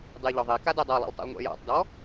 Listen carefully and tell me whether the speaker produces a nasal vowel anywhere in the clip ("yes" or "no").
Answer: no